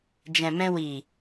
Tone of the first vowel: low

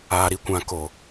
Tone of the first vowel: low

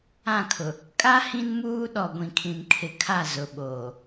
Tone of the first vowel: falling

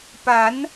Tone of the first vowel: rising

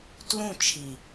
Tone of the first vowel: falling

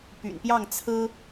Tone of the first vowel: low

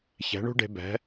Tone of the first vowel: rising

